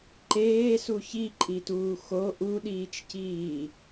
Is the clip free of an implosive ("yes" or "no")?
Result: no